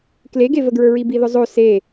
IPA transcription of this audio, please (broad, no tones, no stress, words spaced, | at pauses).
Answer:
kleɡevəɡɹə˞ ɹibiðʊzˤo se